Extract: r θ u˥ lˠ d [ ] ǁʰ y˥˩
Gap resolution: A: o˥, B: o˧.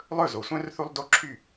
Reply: A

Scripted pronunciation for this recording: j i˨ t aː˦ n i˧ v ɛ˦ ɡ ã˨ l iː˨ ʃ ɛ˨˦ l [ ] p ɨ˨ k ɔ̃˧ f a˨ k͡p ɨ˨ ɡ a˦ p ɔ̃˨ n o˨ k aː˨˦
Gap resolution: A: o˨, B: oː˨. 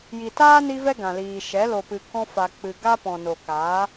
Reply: A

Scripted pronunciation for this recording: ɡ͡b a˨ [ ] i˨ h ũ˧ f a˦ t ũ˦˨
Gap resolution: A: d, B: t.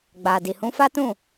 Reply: A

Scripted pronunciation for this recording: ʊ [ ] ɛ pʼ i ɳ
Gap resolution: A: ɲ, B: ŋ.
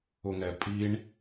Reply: B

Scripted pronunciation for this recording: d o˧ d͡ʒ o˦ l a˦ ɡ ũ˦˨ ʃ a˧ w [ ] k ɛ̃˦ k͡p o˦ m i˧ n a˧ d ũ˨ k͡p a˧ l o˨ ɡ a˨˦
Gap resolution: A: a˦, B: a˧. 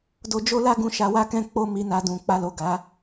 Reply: A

